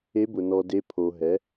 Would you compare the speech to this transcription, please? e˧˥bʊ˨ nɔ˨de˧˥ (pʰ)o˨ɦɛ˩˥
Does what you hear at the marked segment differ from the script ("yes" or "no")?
no